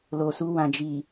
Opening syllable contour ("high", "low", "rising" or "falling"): low